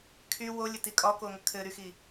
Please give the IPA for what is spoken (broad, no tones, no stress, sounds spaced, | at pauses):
kʰ y w o lʲ ə t i kʼ ɒ k o ŋ ə kʰ ɘ ɾ y x i